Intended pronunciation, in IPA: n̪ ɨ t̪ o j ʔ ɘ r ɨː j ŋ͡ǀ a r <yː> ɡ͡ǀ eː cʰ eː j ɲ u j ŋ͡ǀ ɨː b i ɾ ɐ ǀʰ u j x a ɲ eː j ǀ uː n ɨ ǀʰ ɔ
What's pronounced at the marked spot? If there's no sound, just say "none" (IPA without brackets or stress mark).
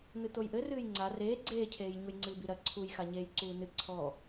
eː